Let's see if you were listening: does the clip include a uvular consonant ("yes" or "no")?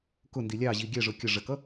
no